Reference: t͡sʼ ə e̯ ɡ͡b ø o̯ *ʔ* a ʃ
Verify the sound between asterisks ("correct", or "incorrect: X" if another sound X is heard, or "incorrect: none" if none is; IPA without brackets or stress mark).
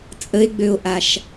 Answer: correct